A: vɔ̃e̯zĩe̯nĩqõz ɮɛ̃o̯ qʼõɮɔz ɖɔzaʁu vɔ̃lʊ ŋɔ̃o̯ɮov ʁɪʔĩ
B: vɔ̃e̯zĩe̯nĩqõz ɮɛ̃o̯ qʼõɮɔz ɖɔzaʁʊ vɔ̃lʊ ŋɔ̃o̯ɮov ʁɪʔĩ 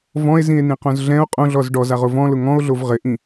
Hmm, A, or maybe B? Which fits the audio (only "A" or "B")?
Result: B